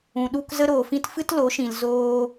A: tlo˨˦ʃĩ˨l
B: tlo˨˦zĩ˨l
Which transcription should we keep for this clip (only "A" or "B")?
A